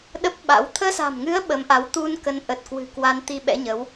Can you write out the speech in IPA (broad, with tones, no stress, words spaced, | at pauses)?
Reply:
ɗə˦˥p̚ɓa̰˧˥w t̪ʰəː˧sa̤˨˩mŋɨ˨˦ə̯ ɓə˨˦mʔa˨˦w t̪u˧nkə˨˦n ʔə˨˩t̚kwɨ̤˨˩ kwa˧nt̪i˧ɓɛ̰˧˥ɲə˨˦w